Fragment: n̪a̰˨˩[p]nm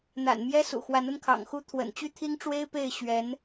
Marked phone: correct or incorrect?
incorrect